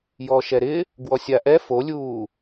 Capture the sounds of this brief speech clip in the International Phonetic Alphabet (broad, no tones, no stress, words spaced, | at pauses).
jɔʃɛɾɪ | ɡwɔsʲaʔɛ folʲuː